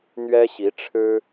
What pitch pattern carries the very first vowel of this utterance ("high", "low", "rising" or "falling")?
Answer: high